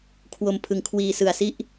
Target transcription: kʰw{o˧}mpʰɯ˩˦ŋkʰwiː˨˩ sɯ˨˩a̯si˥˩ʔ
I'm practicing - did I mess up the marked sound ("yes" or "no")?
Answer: yes